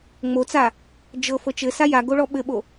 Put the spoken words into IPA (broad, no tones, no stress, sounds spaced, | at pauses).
ŋ͡m o t͡s a | d͡ʒ ɤ f ɤ t͡ʃ ɘ s a j a ɡ o ɭ ɔ ɓ ɘ ɓ o